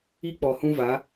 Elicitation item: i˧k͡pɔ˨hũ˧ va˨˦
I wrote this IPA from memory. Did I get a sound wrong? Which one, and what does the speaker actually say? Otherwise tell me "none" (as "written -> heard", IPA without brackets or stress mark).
none